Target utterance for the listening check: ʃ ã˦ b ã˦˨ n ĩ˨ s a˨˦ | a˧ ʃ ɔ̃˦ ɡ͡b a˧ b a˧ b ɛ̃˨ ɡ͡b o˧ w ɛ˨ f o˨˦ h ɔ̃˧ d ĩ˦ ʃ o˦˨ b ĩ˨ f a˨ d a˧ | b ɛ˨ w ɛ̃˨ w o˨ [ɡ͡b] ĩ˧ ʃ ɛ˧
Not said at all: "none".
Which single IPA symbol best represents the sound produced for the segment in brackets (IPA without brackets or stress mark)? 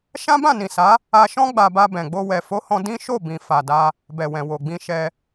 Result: ɡ͡b